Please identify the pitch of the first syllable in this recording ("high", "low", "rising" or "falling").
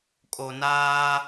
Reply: low